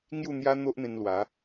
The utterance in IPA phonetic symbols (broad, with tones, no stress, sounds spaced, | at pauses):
ŋ j u˥˧ n̪ j a˦ n̪ o˦ ʔ n̪ ẽ˧ n l w a˨˦